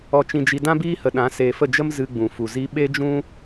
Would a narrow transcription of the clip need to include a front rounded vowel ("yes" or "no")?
no